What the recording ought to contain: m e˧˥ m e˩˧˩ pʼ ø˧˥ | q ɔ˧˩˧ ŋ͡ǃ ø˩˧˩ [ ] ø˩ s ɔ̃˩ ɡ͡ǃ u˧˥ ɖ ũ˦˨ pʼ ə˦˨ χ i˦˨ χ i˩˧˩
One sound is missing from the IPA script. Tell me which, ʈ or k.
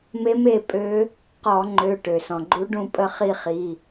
ʈ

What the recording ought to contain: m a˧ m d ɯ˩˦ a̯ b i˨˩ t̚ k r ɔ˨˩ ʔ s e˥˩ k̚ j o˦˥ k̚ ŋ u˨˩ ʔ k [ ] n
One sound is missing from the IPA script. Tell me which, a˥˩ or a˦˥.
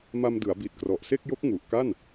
a˥˩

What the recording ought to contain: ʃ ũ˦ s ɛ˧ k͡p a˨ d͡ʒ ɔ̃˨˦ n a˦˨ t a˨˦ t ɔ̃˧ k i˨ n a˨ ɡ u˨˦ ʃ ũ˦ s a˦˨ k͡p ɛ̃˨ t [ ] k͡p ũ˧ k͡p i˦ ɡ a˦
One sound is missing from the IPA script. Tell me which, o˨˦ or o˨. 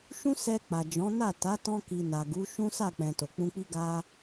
o˨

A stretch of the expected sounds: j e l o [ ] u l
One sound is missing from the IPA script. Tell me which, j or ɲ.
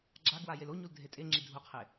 ɲ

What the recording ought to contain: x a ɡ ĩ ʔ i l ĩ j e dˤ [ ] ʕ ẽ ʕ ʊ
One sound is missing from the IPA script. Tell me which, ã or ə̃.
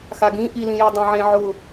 ã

